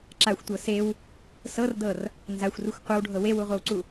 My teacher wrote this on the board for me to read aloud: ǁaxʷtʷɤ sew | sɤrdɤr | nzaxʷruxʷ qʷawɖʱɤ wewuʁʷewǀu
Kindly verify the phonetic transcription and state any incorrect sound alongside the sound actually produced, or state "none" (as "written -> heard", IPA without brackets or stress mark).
none